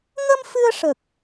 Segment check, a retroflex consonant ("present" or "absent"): present